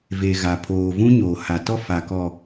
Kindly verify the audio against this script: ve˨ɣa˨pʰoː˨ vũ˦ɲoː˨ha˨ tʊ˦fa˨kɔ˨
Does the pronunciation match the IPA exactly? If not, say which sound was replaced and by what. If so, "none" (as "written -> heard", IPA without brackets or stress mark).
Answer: ʊ˦ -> ɔ˦